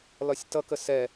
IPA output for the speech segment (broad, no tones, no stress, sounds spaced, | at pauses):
l ɒ sʲ t ʌ k ə s ɛ